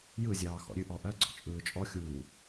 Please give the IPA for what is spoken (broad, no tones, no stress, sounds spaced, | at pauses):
j ɯ zʲ ɑː x ɔ̰ ɾʲ ʉ ʔ ɔ ʔ ɜ ɡ͡ǀ ɔ̰ t͡ʃʼ ɯː t͡ʃʼ ɔ xʲ uː